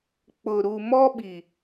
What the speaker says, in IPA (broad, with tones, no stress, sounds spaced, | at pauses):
k͡p ʊ˨ ɾ u˨ m ɔ˦ ɓ i˨